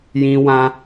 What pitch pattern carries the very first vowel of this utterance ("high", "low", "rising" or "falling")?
high